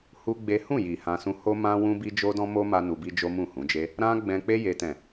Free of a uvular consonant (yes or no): yes